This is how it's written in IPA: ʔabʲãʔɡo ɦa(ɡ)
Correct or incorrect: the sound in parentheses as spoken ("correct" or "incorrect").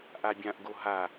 incorrect